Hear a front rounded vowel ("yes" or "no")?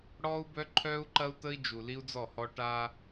yes